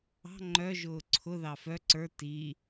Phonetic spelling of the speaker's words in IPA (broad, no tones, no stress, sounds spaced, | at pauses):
ɑ̤ ŋ͡ǃ œ ʒ ʊː ǀʰ ʊ ð ɑ f œ ǀ ə˞ t i